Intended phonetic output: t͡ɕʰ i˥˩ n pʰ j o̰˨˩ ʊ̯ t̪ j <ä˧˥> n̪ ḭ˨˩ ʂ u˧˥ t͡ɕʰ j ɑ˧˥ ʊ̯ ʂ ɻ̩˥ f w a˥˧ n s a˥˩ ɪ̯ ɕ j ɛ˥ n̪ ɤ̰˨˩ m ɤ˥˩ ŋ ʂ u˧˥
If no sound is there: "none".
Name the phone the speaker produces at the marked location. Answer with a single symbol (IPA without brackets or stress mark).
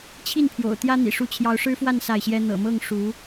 ä˥